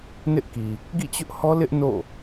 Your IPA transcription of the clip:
n ɪ˦ ʔ k i˨ | ɡ ḭ˦˨ t͡ɕ ʊ˦ ʔ h ɔ˦ l ɪ˦ ʔ n o̰˦˨

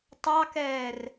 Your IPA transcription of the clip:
tˤ ɑ k ɛː r

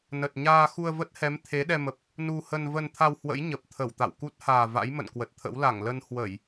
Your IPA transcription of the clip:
n ə˨˩ t̚ ɲ aː˧ x u˧ ə̯ v ə˦˥ t̚ h ɛ˨˦ m t̪ʰ e˨˦ ɗ ɛ˧ m ə˨˩ p̚ | n u˧ h ə˧ n v ə˧ n t̪ʰ a˧ w h w ə̰˧˥ j ɲ ə˨˩ p̚ t̪ʰ ə˧˩ w t̪ a̰˧˨ w k u˦˥ t̚ h aː˨˩ v a̰˧˥ j m ə̰˧˨ n k w ə˨˩ t̚ t̪ʰ ə̰˧˥ w l a˧˩ ŋ l ə˧ n h w ə˧˩˨ j

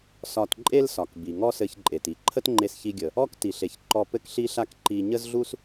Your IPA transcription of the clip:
s ɒ˧ t ǃʼ e˥ l s ɒ˩ k b i˩ ŋ ɔ˥ s ɘ˧ ç ǃʼ e˩ t i˧ ǃʰ ə˥ t ŋ͡ǃ e˧ s ç i˧ ɡʲ ə˩ | ɔ˥ k t i˩ ɬ e˩ ç ǃ ɔ˧ p ɘ˥ k ɬ i˥ ɬ a˥ k ǃ i˧ ɲ ə˥ z ɮ u˥ s

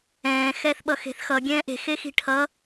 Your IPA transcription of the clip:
ɛ̃ː x ɛː θ ɓ ʌ x e̤ θ x ʌ ɡʲ ɛ̃ː ʔ e̤ x e x i̤ ʈʰ ʌ

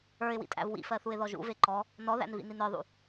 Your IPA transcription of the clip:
ə˞ ɪ̯ w ḭ tʼ æ̰ v w ḭ f ɜ θ u ɪ̯ ð ɔ ʒ ṵ v e ǃ ɔ | n ɔ ð æ̰ n v ḭ n i n ə˞ ðˤ ṵ

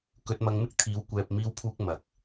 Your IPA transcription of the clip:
k ɵ˧ t̚ m ɐ˧ ŋ m ɪ˥ k̚ t̪ʰ iː˨˧ w kʷ ɛː˧ p̚ m iː˧ w pʰ uː˧ k̚ m ɐ˨ k̚

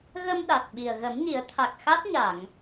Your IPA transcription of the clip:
ɣ ə˧ m ɗ a˨˩ t̚ ɓ i˨˩ ə̯ ɣ ə˨˩˦ m ɲ i˨˩˦ ə̯ t̪ʰ a˨˩ k̚ x a˦˥ t̚ ɲ a˨˩˨ ŋ

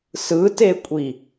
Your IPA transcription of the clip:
s ɯ t e kʷʼ i

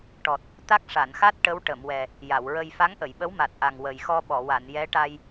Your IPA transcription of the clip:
ʈ ɔ˨˩ t̚ | t̪ a˦˥ k̚ ʂ a˨˩˨ n x a˦˥ t̚ ʈ ə˧˥ w ʈ ə˨˩˨ m w ɛ˨˩ | j a˨˩˨ w ɹ ə˧ j f a˧˥ ŋ ʔ ə˨˩˨ j ɓ ə˧˥ w m a˨˩ t̚ ʔ a˨˩ ŋ w ə˨˩ j x ɔ˧ ɓ ɔ˨˩˨ w a˨˩˨ n j ɛ˧˥ ʈ a˧ j

